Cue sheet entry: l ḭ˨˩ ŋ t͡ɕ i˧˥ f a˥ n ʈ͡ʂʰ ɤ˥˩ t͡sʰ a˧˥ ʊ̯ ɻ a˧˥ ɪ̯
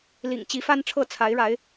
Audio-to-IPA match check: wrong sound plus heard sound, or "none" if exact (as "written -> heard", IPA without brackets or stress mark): ʊ̯ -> ɪ̯